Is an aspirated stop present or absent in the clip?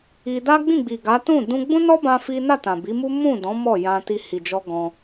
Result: absent